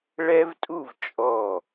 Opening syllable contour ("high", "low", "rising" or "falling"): high